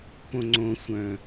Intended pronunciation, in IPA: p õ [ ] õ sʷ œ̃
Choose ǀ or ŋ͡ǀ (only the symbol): ŋ͡ǀ